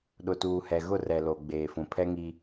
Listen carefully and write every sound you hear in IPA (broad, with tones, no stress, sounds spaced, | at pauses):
ɗ ʊ˨ t uː˨ h ɛ˨ ɣ ʊ˦˨ r ɛ˨ l o˨ ɡ͡b eː˨ f ũ˨ pʰ ɛ˦ ŋ i˦